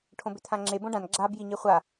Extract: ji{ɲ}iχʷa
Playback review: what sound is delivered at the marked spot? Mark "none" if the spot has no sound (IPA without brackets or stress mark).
ɲ